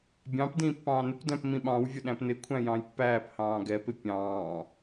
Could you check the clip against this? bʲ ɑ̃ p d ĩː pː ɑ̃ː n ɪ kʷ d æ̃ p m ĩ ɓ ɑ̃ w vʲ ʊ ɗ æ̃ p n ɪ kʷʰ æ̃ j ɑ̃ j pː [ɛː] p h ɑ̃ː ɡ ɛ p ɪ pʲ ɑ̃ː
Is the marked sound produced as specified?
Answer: no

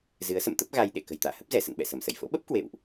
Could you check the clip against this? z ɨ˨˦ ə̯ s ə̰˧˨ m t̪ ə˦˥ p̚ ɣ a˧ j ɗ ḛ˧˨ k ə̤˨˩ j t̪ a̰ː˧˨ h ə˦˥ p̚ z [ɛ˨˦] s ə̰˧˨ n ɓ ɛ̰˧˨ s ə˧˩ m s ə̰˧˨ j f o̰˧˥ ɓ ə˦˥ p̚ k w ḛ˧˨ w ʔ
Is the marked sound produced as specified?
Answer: no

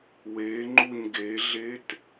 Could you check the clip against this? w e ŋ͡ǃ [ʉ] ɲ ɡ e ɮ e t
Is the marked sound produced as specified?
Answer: no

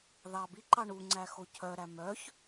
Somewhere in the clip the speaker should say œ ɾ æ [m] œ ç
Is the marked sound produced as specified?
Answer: yes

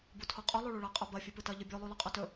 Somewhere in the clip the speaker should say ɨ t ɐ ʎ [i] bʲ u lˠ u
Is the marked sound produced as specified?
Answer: no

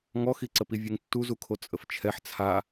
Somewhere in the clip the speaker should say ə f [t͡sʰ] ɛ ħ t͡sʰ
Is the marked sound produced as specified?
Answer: no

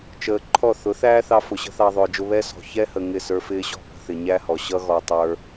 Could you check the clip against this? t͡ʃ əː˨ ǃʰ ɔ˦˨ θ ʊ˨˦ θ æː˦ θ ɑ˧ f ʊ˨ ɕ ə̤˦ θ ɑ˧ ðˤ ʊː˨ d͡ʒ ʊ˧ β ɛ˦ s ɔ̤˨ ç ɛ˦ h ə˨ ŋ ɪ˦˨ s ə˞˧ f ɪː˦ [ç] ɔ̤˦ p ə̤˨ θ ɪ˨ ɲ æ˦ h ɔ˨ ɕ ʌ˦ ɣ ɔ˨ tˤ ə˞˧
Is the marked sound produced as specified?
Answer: no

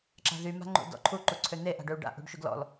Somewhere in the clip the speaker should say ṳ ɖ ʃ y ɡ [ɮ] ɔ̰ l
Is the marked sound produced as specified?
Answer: no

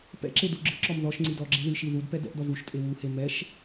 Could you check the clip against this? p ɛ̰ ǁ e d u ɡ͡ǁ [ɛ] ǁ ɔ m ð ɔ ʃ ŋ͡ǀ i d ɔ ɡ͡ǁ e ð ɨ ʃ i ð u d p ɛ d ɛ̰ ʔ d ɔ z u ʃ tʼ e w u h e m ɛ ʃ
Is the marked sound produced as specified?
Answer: no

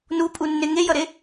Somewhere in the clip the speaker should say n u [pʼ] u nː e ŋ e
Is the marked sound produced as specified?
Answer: yes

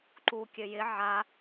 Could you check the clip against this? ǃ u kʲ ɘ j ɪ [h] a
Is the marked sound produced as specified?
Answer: no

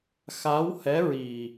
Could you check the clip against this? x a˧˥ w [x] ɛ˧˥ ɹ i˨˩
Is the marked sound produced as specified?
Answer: no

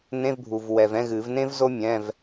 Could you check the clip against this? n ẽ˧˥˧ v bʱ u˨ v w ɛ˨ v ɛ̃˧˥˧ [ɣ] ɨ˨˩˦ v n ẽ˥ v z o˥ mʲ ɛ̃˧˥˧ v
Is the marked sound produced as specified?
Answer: yes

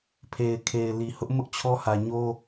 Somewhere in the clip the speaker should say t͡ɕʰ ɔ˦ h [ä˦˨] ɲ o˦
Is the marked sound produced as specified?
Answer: no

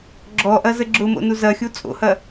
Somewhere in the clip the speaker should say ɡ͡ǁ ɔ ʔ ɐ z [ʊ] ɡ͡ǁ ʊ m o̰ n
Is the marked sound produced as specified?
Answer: no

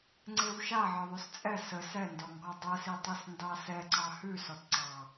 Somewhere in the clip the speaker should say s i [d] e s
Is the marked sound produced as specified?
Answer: no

